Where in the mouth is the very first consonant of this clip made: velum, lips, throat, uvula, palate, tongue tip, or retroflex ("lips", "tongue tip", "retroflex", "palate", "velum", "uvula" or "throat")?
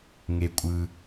velum